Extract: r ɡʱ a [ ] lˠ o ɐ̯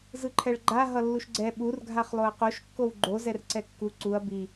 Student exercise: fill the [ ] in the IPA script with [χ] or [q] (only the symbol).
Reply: χ